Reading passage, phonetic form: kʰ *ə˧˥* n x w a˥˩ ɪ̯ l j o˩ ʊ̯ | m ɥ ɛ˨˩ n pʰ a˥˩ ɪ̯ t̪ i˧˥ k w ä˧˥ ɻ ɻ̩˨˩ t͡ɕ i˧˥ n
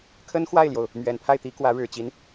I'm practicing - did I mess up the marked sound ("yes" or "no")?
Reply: yes